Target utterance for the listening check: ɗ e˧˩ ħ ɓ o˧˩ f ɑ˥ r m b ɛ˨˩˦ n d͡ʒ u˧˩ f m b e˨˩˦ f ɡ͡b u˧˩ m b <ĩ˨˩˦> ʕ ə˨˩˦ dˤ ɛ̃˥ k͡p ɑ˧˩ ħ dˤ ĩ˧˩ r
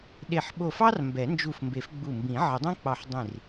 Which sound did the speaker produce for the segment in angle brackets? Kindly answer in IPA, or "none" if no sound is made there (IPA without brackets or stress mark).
ĩ˨˩˦